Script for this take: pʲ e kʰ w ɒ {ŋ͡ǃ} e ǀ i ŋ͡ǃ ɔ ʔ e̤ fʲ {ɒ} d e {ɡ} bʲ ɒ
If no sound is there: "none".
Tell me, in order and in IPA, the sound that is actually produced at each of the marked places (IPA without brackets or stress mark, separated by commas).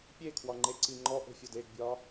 ŋ͡ǃ, ɒ, ɡ